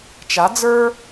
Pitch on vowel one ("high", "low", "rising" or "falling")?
rising